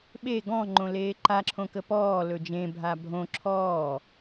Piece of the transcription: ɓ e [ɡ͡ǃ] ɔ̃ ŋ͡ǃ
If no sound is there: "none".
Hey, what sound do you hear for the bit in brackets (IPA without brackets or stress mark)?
ɡ